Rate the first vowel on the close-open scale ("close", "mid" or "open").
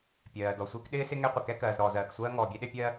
mid